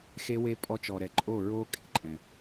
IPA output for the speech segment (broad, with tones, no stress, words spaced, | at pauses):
xe˦we˦ pʼɔ˦t͡ʃɔ˨ɾɛ˨ ǃʼo˦˨ɹo˦ kʼḛ˨˦ǃʼɛ̃˨